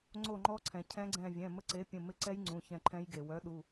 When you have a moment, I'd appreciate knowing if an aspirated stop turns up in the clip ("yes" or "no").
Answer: yes